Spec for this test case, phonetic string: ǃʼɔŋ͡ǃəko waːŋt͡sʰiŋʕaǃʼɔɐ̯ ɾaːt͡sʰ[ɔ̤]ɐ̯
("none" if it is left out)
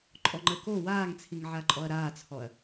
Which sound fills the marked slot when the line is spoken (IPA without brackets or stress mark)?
ɔ